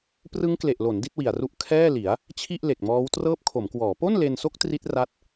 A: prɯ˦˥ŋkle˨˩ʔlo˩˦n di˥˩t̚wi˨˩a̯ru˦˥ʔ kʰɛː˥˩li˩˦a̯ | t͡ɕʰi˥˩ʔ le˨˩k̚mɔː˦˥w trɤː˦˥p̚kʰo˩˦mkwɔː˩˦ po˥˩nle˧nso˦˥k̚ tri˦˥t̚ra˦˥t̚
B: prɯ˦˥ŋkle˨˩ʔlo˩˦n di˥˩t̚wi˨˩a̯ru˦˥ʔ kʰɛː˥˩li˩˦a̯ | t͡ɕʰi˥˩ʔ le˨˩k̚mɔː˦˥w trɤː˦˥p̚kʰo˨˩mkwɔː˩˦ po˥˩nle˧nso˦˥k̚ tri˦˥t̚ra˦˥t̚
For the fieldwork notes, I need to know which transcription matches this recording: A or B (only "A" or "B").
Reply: A